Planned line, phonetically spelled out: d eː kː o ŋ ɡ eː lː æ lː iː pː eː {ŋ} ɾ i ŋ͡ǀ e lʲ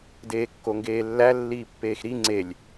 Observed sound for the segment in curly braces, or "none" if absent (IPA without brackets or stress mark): x